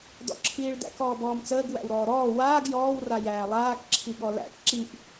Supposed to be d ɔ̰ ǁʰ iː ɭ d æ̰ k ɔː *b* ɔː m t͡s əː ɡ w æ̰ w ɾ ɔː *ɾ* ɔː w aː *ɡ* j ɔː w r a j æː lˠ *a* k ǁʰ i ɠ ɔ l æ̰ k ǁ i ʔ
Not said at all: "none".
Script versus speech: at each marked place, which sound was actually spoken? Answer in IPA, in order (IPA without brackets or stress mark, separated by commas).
b, ɾ, ɡ, aː